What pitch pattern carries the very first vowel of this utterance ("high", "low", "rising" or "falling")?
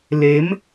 rising